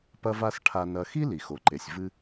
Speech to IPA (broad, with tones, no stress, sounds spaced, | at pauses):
p ɐ˧ v a˧ s ʈʰ a˧ n ɐ˧ x i˥ l i˩ x o˩ ǃ e˩ sʲ v ɨ˧